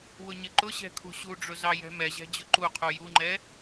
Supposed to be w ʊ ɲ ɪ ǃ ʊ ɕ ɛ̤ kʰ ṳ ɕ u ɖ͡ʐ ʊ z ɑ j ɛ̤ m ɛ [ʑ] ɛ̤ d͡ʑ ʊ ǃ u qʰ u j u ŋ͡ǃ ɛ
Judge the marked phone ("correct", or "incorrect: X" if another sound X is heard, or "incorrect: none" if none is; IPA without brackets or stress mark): correct